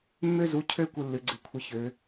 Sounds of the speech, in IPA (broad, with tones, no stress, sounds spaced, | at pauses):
mː ø˦ z u˨˦ cʰ ø˦ kʷ ɨ˦ lː ɨ˨˦ ɡ͡ǀ ɨ˨˦ kʷʰ ɨ˦ ç ø˨˦